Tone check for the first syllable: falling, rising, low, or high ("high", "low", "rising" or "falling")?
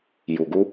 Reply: low